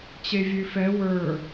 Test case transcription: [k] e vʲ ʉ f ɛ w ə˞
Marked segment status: incorrect: t͡ɕ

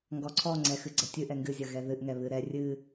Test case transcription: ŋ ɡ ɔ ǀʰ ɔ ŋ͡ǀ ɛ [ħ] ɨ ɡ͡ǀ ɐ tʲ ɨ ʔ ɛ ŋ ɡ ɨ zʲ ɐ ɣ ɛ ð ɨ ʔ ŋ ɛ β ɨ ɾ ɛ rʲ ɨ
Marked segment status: incorrect: x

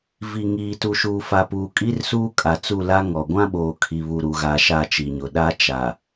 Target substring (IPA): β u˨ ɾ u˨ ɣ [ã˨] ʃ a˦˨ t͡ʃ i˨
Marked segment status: incorrect: a˨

